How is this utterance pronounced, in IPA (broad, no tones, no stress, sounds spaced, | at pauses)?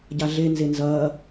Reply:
ɟ a ɮ e n z e n z ɐ